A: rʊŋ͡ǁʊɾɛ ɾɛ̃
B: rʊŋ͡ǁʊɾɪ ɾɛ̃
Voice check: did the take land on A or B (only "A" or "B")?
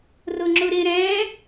B